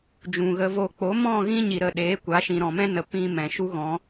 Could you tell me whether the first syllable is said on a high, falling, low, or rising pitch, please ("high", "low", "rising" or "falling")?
low